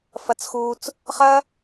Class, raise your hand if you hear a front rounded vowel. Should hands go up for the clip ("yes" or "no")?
no